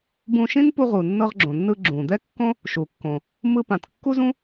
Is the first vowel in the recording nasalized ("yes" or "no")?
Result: yes